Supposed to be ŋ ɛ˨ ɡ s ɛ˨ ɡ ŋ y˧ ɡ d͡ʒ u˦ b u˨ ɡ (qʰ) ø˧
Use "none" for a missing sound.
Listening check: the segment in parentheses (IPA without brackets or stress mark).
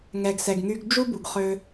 χ